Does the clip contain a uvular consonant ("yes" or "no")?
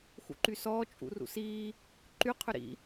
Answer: yes